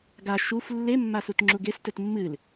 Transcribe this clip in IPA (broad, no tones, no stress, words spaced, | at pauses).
ɡa ʃuf lːemːasutŋ͡ǁuɡ estɘt mːɨl